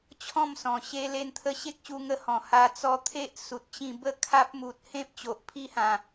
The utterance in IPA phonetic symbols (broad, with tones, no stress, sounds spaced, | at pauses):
t͡ɕʰ ɔ̃˥˧ m s ɔ̃˨˩ ɕ e˧ l e˧ n t̪ʰ ə˧ ɕ e˦ k̚ ɕ u˧ ŋ ə˧ h ɔ̃˨˩ h a˧ t͡s ɔ˧ t̪ʰ e˦ ʔ s u˨ t̚ t͡ɕ ĩ˧ b ə˥˧ kʰ a˦ p̚ m u˨ t̚ h ẽ˦ p̚ t͡ɕ o˨ ʔ pʰ i˦ h ã˨˩